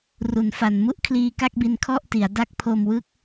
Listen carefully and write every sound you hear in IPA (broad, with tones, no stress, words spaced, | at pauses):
ru˩˦nfa˨˩n mu˥˩ʔkʰliː˧ka˥˩k̚bi˧n kʰɔ˥˩ʔti˩˦a̯da˦˥k̚ pʰo˧mwɯ˦˥k̚